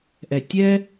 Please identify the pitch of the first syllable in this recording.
low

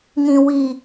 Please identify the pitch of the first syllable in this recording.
low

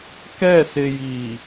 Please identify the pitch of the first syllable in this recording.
falling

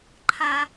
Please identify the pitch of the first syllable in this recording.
high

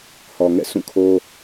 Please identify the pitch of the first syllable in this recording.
low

